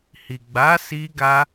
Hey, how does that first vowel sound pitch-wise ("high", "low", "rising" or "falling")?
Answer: low